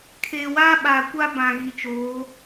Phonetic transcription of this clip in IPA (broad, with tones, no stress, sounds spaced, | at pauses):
kʰ eː˨ w aː˦ ɓ aː˨ kʷ a˦ b ã˨ ɣ i˨ t͡ʃ oː˨˦